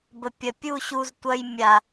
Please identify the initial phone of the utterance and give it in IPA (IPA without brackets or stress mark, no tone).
b